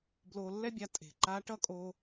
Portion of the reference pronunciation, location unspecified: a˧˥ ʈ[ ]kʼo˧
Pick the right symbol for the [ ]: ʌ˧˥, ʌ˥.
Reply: ʌ˥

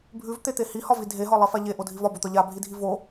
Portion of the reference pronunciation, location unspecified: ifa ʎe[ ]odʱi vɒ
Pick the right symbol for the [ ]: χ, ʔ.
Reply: ʔ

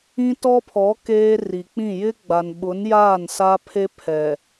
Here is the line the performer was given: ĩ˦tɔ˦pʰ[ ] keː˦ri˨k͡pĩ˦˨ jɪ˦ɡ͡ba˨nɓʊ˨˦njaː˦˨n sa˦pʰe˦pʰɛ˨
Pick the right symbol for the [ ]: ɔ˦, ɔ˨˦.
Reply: ɔ˨˦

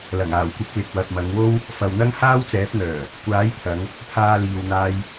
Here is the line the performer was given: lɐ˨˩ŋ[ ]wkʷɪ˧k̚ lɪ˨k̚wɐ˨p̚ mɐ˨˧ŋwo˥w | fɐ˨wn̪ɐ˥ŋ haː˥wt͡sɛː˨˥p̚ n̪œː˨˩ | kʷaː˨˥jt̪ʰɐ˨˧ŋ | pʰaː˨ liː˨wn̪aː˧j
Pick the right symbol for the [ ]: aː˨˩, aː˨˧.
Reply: aː˨˩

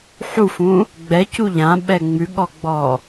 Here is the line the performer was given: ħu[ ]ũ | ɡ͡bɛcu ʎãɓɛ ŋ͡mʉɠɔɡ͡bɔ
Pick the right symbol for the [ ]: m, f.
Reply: f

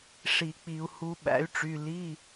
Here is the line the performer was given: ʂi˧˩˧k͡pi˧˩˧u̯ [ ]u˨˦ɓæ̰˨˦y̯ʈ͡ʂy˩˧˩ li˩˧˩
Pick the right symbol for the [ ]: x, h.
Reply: h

